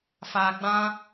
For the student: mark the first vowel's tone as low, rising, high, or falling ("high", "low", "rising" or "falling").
low